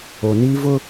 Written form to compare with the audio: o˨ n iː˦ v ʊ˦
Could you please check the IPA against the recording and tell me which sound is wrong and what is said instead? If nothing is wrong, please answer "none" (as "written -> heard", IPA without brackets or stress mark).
none